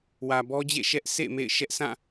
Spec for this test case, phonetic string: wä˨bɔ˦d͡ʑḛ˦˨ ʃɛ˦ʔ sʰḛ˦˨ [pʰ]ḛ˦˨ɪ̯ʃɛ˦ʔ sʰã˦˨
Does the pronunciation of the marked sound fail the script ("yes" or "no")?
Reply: yes